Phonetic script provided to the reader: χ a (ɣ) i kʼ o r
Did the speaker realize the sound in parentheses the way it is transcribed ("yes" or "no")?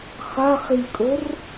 no